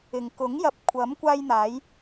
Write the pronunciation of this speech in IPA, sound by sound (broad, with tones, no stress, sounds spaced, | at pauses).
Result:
ɪ˨ ŋ k ʊ˨˥ ŋ j ɐ˨˥ p̚ kʷʰ ɐ˨˥ m kʷ aː˧ j n̪ aː˨˧ j